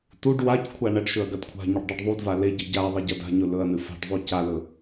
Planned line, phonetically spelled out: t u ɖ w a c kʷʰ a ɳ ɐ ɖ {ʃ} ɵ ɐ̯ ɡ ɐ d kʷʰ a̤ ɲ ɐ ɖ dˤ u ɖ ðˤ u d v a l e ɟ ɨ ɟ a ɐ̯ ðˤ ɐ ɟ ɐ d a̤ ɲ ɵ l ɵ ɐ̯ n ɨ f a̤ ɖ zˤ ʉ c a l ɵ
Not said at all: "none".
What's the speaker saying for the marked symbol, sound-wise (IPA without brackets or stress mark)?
ʃ